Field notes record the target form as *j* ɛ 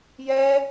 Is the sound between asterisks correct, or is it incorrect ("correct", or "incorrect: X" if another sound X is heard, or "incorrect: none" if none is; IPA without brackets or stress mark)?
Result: correct